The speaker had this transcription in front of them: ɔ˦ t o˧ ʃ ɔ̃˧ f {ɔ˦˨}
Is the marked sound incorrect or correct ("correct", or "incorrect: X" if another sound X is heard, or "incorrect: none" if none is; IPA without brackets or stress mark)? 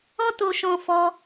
incorrect: ɔ˦